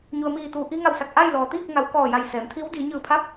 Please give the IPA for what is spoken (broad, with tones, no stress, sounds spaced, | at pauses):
ɲ u˩ ə̯ m iː˧˩ t̪ uː˩ ʔ i˧ ŋ a˧˩ w s a˧˩ k̚ ʔ a˥˨ j l ɔː˩ t̪ iː˥˨ k̚ ŋ a˩˧ w k ɔː˧˩ j a˧˩ j s ɛː˩˧ m t̪ʰ i˧˥ w d iː˩˧ ɲ ɯː˧˩ pʰ a˧˥ p̚